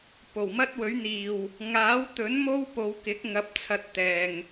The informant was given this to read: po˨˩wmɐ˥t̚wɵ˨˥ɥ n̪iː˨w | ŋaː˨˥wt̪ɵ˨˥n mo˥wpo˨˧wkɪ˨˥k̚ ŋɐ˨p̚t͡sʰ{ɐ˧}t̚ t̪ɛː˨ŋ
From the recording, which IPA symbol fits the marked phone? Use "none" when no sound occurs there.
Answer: ɐ˧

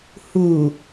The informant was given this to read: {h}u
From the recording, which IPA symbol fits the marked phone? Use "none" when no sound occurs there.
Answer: h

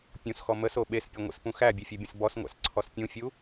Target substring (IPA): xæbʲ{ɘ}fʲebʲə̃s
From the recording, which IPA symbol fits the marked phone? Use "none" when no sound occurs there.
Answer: e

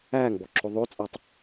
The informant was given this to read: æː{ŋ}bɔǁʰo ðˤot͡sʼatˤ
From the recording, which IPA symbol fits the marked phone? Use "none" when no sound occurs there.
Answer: ŋ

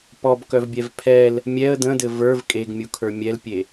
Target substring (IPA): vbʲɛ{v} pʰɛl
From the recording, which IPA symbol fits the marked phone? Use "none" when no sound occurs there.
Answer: v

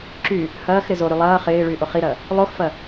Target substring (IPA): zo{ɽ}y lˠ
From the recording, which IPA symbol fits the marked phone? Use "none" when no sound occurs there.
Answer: ɾ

